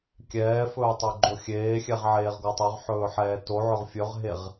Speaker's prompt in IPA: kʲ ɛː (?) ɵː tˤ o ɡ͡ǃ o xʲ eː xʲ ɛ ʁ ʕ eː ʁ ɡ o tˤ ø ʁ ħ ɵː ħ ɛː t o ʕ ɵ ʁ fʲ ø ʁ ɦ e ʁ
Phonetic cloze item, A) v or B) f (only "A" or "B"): B